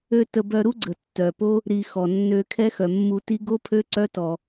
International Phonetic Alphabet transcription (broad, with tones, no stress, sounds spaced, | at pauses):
ø˧ t ə˧ b œ˧ ɾ u˦ ɡ͡ǀ ə˨ tː œ˨ p o˦ | ɾ i˧ x ɔ˨ nː ø˧ kʰ ɛ˦ x œ˨ mː u˧ t i˦ ɡ o˦ pʰ ø˦ ǀ œ˦ t ɔ˧